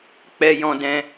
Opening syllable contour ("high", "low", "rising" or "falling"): low